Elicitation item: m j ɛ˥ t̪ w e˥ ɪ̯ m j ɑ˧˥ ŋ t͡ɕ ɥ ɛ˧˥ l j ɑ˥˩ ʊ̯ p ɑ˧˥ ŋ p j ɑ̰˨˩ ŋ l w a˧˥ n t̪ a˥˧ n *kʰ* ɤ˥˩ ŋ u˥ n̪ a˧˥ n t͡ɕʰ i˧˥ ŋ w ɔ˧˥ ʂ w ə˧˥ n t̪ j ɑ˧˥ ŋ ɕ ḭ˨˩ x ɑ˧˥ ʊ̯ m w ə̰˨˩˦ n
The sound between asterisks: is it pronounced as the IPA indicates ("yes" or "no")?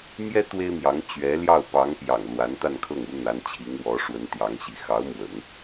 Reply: yes